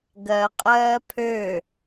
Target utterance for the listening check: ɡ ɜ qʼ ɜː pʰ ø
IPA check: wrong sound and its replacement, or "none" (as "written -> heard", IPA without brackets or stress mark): none